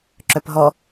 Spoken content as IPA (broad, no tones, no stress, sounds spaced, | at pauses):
ǁ œ p ɦ ɔ